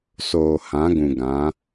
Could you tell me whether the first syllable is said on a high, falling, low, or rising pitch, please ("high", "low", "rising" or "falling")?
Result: low